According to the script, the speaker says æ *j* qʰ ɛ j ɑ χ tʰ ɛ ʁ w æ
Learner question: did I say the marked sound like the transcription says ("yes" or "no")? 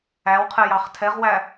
no